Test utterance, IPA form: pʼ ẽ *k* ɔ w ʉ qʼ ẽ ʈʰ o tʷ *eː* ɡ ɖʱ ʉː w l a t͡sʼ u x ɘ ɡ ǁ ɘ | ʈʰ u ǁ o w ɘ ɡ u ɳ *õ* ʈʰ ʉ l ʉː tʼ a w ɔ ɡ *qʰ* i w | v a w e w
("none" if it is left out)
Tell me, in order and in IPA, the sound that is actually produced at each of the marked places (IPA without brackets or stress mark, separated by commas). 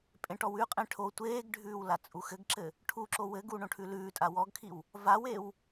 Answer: ʈ, eː, õ, kʰ